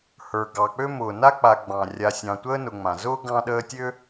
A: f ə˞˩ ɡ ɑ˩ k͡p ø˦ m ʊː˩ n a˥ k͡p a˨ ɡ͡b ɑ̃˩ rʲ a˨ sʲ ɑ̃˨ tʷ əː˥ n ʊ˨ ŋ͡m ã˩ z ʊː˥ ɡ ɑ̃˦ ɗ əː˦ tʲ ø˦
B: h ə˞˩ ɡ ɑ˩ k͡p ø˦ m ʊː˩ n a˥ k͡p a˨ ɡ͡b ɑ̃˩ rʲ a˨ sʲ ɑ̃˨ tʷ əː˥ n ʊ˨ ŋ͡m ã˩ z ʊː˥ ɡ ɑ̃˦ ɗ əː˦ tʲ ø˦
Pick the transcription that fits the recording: B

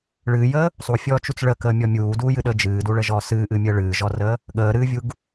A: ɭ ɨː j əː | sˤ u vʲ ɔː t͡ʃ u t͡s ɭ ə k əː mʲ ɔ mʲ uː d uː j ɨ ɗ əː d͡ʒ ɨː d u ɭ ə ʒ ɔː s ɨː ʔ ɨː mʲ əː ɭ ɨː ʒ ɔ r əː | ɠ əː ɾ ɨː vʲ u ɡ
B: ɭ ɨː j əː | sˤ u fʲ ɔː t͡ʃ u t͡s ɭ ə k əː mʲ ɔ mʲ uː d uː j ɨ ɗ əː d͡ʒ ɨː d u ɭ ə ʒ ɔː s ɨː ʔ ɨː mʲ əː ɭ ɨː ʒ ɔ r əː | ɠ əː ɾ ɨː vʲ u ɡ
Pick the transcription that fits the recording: B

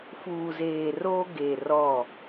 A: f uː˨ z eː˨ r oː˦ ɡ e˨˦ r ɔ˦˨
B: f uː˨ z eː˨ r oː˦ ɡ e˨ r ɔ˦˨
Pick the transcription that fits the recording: B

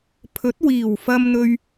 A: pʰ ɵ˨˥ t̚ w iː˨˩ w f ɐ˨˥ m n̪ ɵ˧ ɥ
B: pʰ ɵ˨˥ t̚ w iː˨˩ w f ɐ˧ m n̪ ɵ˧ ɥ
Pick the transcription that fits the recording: B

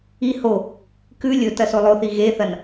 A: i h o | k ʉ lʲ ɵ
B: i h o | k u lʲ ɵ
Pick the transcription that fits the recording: A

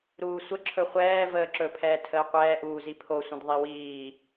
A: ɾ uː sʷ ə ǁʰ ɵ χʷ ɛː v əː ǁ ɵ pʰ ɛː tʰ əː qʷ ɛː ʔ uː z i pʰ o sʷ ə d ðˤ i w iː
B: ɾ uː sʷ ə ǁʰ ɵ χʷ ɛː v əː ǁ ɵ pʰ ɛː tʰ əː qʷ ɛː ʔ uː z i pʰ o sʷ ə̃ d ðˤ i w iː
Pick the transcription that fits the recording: B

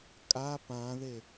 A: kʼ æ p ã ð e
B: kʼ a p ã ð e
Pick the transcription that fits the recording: B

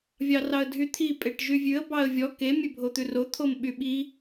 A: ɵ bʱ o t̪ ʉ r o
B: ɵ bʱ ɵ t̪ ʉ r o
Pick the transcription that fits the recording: A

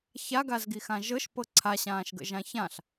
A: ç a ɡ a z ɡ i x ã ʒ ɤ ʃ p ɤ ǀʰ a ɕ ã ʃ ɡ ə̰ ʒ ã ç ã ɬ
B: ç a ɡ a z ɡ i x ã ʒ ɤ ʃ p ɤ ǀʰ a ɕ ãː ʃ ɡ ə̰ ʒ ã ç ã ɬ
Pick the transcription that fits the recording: B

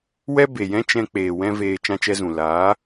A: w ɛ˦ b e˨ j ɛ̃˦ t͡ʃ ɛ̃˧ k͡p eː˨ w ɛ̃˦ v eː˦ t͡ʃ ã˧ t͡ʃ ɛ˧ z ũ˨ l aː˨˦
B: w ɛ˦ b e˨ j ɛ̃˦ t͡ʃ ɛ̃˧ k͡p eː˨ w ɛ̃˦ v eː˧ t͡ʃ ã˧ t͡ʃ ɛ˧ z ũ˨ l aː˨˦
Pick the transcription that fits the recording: B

